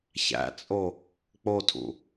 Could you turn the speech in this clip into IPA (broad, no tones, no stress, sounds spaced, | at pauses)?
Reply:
ç æ̰ t͡sʼ o | k͡p o tʰ ṵ